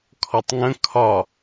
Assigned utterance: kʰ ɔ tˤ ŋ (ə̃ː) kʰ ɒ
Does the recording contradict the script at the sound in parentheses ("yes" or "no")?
yes